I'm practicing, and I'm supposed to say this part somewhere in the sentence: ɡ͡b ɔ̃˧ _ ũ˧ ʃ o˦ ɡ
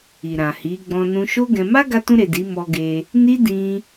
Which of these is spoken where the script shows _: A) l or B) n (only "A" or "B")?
B